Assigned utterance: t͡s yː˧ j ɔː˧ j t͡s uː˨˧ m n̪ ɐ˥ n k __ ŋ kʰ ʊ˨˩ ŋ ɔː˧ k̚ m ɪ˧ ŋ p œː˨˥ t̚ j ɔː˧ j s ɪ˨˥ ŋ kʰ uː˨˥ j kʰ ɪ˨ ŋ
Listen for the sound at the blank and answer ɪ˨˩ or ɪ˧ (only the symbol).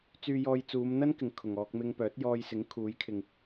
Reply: ɪ˨˩